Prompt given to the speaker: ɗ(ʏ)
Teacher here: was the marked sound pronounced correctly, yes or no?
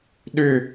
yes